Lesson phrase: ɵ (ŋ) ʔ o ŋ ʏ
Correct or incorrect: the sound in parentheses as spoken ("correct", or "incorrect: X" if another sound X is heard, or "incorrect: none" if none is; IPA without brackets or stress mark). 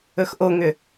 incorrect: x